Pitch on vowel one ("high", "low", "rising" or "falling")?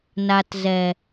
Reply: low